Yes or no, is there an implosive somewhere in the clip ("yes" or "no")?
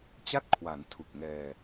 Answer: no